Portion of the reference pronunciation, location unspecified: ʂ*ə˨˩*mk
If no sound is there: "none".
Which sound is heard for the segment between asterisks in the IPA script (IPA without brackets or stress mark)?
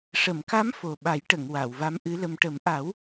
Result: ə˨˩˨